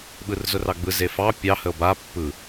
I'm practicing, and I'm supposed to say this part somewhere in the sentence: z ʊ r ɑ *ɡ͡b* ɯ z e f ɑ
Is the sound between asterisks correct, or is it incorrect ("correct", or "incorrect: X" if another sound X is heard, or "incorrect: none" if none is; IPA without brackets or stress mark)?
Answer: correct